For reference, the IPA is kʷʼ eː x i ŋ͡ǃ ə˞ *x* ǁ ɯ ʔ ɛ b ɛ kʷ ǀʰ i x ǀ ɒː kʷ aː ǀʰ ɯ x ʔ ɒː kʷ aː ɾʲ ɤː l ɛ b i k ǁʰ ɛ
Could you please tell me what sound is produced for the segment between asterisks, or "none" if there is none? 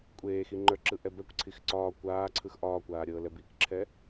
none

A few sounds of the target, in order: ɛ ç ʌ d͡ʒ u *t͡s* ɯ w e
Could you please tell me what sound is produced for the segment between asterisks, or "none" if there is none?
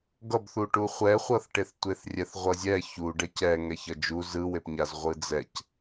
z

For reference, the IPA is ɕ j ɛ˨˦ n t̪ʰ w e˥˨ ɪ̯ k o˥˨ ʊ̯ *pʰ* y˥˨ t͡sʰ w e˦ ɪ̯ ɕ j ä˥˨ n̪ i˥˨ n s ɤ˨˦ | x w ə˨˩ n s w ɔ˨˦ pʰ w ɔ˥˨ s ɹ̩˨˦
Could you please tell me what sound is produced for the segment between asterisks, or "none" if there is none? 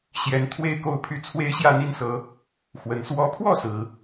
pʰ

